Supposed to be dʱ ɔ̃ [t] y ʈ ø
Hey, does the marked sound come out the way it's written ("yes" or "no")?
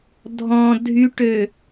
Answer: no